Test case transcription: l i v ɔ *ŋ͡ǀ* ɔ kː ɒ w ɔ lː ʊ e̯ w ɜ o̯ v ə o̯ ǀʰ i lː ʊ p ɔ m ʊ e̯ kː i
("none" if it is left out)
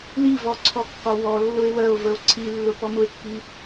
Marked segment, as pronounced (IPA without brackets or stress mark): ǀʰ